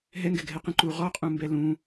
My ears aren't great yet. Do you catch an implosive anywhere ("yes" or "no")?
no